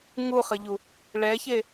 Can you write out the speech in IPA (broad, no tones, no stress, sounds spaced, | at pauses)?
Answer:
ŋ u χ ə ʎ u | ɭ ɛ ç e